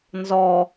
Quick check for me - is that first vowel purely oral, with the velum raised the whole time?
yes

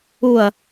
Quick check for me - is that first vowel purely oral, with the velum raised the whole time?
yes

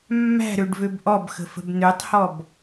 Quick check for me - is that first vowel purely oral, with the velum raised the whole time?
yes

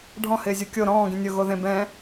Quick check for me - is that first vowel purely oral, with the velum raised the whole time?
no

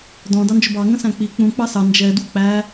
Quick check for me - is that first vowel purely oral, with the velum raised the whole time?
no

